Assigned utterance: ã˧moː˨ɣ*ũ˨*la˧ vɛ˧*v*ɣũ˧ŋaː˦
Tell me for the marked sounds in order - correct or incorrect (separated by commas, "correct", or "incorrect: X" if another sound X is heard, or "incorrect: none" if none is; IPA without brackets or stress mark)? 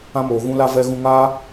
incorrect: ũ˧, incorrect: none